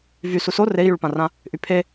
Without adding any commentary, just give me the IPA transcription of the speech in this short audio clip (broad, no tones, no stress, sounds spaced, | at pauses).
v y s u s o r e i̯ j y ɭ p ã r ã | ʔ y pʰ e